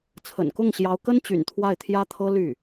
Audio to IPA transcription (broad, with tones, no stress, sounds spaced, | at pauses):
t͡sʰ ə̰˨˩ n k ʊ˥˩ ŋ ɕ j ɑ˧˥ ʊ̯ k ə˥ n t͡ɕ y̰˨˩ n t̪ʰ w a˥˩ ɪ̯ t̪ʰ j ä˥ t̪ʰ ɤ˥ l y˥˩